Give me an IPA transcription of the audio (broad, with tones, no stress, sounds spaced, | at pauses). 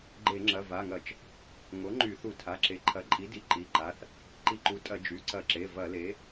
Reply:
ɡ͡ǃ e˧˩˧ ŋ͡ǁ ɐ˩˧˩ v a˩˧˩ ŋ ɐ˧˩˧ t͡ʃ | ŋ o˩˥ ŋ͡ǃ y˧˩˧ θ u˧˩˧ tʰ a˩˧˩ ǁ e˩˥ ǃʰ ɐ˩˥ ǃʼ i˩˥ d i˩˧˩ ǃ i˩˧˩ ǃ a˩˧˩ θ | ǃ i˧˩˧ ǃ u˩˥ tʼ ɐ˧˩˧ d͡ʒ y˩˧˩ ǀ ɐ˧˩˧ ǁ e˩˧˩ v ɐ˧˩˧ l e˩˥